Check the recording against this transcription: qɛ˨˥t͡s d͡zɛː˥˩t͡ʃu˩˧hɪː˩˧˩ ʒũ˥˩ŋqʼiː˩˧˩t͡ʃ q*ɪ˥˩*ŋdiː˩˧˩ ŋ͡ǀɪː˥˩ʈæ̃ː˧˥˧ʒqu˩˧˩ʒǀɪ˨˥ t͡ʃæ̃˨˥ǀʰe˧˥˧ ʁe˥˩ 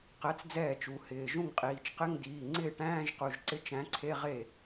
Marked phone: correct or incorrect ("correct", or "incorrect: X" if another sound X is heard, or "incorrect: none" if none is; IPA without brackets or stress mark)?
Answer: incorrect: ɪ˧˥˧